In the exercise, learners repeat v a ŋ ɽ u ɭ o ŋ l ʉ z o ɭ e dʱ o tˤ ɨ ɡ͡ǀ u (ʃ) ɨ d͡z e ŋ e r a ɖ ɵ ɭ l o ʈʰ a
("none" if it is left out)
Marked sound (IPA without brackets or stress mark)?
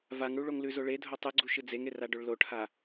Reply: ʃ